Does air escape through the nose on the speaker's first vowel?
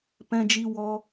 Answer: yes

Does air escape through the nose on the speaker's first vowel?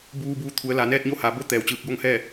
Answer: no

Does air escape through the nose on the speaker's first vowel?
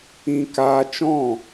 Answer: yes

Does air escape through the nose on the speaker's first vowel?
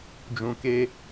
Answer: yes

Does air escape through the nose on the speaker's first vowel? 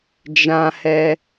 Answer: yes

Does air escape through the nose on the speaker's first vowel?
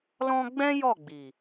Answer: yes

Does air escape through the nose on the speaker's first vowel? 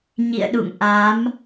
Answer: no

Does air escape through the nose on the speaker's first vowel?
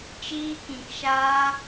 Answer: no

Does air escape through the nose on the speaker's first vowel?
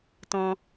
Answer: yes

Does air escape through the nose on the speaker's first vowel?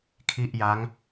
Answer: no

